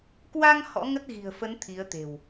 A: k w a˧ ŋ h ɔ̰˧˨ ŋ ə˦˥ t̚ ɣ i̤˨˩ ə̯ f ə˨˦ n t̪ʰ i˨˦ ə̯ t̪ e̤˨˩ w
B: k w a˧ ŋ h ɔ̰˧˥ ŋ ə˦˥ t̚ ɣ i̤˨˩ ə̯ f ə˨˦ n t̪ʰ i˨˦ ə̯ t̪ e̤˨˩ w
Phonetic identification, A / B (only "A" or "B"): B